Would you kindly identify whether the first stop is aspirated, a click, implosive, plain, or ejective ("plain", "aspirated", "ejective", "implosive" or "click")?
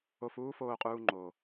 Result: ejective